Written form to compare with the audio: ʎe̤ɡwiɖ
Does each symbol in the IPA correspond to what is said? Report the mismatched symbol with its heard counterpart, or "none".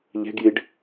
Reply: w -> j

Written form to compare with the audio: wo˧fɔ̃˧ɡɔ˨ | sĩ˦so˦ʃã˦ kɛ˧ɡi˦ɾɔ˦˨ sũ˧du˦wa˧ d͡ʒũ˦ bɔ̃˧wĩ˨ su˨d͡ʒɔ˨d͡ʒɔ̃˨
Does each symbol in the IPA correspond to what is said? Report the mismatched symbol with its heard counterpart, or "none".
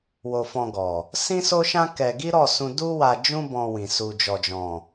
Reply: none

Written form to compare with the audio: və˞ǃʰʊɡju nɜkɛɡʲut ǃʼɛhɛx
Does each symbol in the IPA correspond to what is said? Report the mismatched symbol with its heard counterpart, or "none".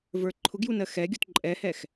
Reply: k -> x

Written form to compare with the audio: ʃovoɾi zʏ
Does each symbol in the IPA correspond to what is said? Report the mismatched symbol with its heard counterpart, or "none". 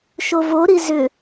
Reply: none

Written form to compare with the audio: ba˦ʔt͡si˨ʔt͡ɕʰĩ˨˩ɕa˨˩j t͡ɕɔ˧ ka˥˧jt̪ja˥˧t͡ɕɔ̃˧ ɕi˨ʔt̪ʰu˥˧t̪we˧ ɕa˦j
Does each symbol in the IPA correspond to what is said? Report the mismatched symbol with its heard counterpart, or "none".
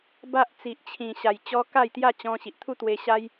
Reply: none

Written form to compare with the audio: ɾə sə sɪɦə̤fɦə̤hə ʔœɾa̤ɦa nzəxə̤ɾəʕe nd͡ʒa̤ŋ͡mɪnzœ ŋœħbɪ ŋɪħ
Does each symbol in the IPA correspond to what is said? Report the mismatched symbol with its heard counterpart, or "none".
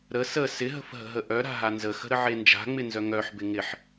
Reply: h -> ɦ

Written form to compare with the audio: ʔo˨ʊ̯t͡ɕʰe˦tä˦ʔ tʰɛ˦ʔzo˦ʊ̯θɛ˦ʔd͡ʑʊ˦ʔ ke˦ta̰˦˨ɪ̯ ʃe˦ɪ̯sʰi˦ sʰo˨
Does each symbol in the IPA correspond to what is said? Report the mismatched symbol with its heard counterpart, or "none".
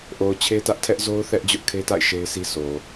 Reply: k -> kʰ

